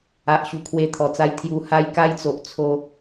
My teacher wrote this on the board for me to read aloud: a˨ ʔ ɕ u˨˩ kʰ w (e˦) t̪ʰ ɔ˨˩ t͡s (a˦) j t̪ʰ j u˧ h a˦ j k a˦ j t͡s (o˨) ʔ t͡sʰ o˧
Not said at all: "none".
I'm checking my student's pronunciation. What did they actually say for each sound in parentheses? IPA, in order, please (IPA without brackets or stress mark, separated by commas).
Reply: e˧, a˧, o˨